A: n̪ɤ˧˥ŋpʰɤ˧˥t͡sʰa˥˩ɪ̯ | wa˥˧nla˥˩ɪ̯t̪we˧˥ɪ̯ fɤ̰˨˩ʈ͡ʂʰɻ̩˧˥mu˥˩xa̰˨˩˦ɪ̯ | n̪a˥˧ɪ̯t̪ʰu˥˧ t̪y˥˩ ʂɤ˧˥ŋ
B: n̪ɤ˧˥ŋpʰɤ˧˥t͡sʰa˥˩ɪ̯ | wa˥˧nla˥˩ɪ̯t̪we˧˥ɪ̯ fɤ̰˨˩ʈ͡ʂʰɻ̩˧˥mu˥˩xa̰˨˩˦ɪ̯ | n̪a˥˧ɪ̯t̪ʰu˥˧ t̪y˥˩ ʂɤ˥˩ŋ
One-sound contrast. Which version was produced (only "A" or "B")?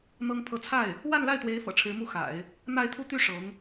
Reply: A